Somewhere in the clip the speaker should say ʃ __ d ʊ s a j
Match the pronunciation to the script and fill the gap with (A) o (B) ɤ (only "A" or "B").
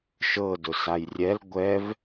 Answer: B